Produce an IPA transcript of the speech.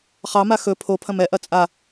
χ ɑ m a x ɵ pʰ o pʰ ɐ̃ m ɛ ʔ ɐ t͡sʼ a

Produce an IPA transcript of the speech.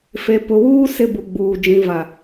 f e˨ p ʊ˨ w uː˦ s ɪ˦ b u˨ ɡ͡b uː˨ d͡ʒ ĩ˨ v a˨

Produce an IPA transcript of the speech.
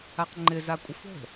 a q ŋ͡ǃ ɪ z a kʷʼ ɪ f o̤

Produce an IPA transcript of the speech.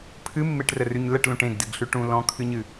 pʰ ɨ mː e ʈ r ə r ʉ ɲ l ə ʈ l ũ ʈ ẽ ɡ d ɨ ɡ ɬ ʉ ʈ ũ l ɔ̃ kʰ ɨ ɲ ɨ

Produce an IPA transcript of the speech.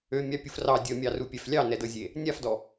ø mʲ ɑ pʲ u f r ɑ dʲ ɤ mʲ ɑ r u pʲ ɛ f lʲ ɑ n ɛ d ɤ zʲ e | nʲ a f d ɔ

